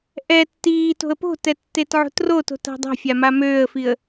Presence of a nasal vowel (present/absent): absent